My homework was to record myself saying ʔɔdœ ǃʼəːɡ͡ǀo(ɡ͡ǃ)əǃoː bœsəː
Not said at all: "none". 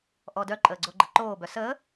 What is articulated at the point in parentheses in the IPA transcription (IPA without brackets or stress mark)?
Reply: ɡ͡ǃ